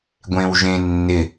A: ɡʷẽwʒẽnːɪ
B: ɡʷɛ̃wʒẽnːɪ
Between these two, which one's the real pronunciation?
A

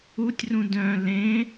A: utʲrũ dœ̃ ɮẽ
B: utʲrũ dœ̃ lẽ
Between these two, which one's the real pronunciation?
B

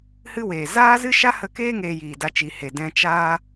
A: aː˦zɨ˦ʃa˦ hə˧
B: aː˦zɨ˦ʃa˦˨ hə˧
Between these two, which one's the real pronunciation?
A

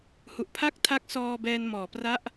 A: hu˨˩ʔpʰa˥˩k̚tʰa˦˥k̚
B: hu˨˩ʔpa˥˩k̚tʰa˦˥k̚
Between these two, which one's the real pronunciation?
A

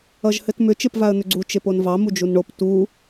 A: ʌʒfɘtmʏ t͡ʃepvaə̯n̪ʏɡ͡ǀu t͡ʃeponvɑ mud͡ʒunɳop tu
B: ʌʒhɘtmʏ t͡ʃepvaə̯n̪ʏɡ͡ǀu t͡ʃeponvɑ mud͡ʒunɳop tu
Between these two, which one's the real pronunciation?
B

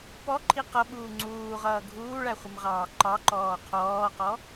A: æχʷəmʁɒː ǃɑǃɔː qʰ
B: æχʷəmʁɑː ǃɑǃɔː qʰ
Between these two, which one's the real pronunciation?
B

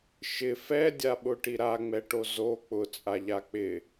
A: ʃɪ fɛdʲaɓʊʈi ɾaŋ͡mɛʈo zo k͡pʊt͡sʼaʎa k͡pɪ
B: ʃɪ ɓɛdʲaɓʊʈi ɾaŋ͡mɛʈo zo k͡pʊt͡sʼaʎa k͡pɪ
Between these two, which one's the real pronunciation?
A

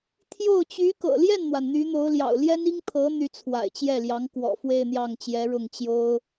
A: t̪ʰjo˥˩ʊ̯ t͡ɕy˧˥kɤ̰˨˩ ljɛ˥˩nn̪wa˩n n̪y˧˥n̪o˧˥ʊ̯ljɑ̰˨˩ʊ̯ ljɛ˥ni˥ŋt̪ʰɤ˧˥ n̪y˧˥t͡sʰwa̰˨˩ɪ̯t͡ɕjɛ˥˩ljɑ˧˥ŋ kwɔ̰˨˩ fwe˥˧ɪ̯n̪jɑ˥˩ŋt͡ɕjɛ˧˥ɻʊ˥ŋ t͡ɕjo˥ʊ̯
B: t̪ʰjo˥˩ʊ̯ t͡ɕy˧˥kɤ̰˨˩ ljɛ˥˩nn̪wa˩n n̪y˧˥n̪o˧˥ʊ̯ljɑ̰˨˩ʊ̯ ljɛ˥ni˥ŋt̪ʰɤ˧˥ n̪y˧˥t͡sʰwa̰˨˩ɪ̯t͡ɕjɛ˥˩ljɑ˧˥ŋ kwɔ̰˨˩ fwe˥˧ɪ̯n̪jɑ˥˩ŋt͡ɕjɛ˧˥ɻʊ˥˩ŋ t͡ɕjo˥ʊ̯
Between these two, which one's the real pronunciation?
B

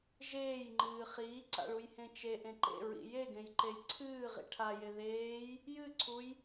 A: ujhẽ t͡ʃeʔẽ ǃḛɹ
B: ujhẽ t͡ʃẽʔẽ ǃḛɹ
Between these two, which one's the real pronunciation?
A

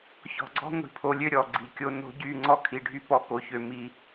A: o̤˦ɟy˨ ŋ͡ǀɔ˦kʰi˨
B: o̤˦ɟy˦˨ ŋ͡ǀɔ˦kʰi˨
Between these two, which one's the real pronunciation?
B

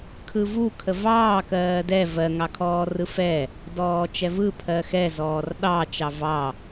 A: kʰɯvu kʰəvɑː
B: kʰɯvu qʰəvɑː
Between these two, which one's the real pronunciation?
A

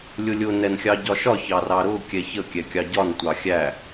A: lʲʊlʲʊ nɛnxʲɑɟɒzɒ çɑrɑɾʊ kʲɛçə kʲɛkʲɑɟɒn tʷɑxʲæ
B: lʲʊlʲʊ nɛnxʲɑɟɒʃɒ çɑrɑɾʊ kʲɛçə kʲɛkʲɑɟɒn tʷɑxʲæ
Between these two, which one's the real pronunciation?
B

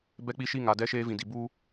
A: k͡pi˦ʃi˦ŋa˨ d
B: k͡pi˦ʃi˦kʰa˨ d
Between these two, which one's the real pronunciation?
A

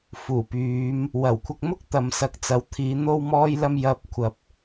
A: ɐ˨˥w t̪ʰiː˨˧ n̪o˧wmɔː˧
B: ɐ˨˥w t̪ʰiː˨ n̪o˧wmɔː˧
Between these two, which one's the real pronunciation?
A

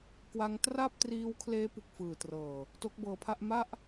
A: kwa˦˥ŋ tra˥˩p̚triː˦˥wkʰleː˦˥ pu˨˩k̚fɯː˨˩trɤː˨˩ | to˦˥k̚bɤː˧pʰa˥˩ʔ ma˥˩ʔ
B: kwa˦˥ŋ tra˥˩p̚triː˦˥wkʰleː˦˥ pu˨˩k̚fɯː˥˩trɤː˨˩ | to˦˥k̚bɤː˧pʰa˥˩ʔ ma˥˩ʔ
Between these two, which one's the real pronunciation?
A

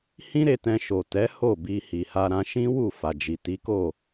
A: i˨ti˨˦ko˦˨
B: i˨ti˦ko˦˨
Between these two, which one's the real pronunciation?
A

